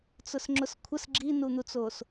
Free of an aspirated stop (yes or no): no